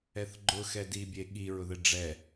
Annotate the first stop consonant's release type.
click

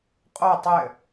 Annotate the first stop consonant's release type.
ejective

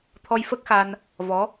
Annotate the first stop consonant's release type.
aspirated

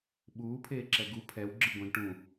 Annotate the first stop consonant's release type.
implosive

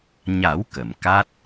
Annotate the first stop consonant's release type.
plain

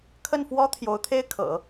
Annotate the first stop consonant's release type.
aspirated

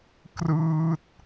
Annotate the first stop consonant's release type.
plain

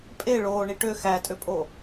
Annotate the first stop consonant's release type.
ejective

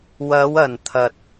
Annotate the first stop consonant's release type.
aspirated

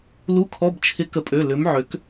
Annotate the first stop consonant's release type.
aspirated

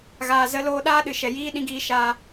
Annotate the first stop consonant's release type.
implosive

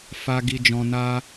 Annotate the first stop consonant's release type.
plain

